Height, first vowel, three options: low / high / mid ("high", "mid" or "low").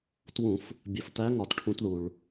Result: high